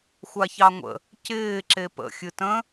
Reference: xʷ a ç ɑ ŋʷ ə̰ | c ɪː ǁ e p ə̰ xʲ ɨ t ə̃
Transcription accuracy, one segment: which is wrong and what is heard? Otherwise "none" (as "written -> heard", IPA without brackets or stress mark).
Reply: none